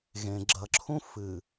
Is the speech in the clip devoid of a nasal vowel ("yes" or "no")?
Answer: no